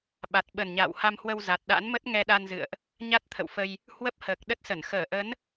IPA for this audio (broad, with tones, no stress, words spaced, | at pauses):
ɓa˨˩t̚ ɓə˨˩nɲa̰ː˧˨wha˧mhwə˧w za˨˩t̚ɗa̰˧˥nmə˦˥t̚ ŋɛ˧ɗa˧nzɨ̰˧˨ə̯ʔ | ɲa˦˥t̚t̪ʰə̰˧˨wfə˧j | hwə˦˥p̚həː˨˩k̚ ɗə˦˥t̚sə˧˩n xəː˧˩ʔə˨˦n